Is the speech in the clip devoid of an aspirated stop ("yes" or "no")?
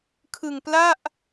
no